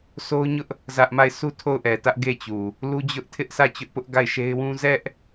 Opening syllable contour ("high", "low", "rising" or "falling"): high